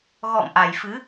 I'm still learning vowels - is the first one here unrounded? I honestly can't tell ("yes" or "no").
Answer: no